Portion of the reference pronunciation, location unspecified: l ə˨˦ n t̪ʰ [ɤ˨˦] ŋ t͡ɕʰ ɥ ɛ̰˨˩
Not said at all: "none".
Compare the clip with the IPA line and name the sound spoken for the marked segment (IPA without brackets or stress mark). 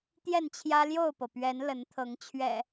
ɤ˨˦